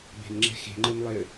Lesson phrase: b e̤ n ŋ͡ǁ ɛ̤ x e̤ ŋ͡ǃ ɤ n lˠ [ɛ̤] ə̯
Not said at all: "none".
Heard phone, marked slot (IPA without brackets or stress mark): ɛ